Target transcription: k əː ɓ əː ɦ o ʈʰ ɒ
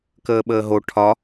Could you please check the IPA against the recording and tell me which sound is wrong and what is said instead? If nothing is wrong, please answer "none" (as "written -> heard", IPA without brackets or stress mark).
none